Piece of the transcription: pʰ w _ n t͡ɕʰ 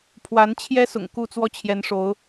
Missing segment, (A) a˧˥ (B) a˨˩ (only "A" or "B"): A